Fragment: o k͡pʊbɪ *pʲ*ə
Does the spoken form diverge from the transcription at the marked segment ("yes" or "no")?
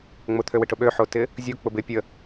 no